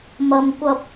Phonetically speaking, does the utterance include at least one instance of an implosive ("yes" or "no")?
no